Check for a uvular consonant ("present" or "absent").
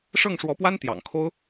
absent